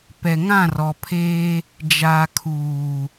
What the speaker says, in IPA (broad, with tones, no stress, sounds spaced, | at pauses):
p ɛ˨ ŋ ã˦˨ r ɔ˨ pʰ eː˦ | d͡ʒ aː˨ kʰ uː˨